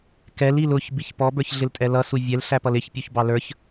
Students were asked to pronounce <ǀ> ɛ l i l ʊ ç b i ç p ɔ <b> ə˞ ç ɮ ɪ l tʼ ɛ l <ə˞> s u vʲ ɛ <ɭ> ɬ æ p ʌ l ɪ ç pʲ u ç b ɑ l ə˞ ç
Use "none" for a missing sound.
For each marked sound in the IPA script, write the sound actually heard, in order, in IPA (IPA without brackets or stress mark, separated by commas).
k, b, ʌ, l